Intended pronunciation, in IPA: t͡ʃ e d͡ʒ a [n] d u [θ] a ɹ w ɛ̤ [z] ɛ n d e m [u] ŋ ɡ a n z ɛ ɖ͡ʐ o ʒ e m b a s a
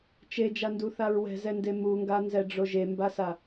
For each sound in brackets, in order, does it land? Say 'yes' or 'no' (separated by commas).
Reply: yes, yes, yes, yes